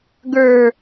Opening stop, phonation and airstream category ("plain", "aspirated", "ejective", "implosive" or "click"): plain